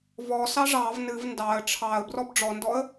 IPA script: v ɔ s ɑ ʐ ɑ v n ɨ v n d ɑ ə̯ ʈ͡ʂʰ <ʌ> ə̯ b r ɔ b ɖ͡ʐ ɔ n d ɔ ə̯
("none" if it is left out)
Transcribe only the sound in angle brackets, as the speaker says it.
ɑ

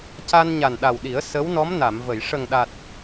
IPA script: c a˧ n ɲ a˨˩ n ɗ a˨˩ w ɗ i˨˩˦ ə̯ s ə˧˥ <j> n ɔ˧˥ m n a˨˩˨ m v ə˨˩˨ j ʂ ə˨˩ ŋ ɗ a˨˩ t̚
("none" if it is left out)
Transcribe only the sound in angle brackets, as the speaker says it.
w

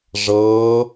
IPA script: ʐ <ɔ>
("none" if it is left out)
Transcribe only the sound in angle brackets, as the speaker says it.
ɤ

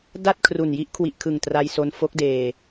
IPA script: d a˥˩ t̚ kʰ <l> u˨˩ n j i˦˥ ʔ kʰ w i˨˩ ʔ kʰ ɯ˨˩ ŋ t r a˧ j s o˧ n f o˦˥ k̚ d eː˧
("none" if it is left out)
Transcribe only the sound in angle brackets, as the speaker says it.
r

